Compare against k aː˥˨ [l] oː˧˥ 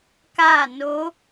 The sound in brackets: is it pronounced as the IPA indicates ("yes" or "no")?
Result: no